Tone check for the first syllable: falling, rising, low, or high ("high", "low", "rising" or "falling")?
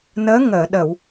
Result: rising